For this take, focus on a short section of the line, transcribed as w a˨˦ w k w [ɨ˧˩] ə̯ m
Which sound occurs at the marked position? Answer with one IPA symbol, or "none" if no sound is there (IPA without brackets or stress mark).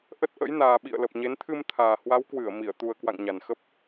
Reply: ɨ˧˩